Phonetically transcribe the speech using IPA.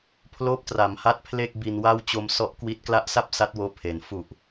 pʰ l oː˦˥ p̚ t r a˩˦ m h a˦˥ t̚ pʰ l e˥˩ k̚ b i˧ n w a˥˩ w t͡ɕ o˧ m s ɔ˦˥ ʔ k w i˦˥ t̚ k l a˦˥ ʔ s a˥˩ p̚ s a˦˥ t̚ w oː˦˥ pʰ e˨˩ n f u˨˩ ʔ

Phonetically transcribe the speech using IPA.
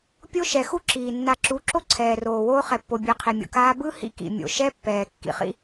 pʲ o˦ ʃ ɛ˨ x u˦ ǁ iː˨ nː a˨ ǁ u˨˦ ǁ o˦ ǀʰ ɛː˨ r oː˨ w oː˦ χ ɛ˨ pː o˨ bʲ ɯ˨ qʰ i˨ mʲ o̰˨ k aː˦ b ɯ˦ h ḭ˦ k ḭ˨ mʲ o̰˨ ʃ ɛ˦ pː ɛː˨ kː ḭ˨ χ ḭ˦

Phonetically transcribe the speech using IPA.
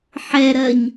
ħ ɛ ɾ ɜ ɲ

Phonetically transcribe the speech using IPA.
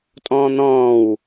tʼ ɔ̃ː n̪ ɔ̃ː w

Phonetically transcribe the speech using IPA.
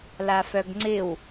l a f œ ɡ ŋ͡ǀ ɪ w

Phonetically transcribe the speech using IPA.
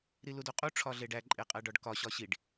ɾ i l u d o qʼ u ʈ͡ʂʰ ɒ ɮ e ɖ æ ǃʼ e qʼ æ ɖ ɒ ɖ k ɒ ɕ ɒ ɕ i ɖ

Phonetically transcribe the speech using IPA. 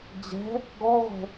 d͡ʑ ɛ̤ | ɡ ɔ ʁʷ ɛ̤

